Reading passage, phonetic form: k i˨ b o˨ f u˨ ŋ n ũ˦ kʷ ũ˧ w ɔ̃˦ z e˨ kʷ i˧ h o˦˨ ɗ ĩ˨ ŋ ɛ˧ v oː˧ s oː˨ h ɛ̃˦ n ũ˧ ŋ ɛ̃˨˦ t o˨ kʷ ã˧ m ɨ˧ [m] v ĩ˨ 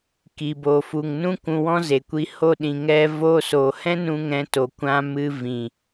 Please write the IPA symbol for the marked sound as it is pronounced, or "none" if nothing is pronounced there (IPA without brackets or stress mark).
none